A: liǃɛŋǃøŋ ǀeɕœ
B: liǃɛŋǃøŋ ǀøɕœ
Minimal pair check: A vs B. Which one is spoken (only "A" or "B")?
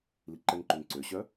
B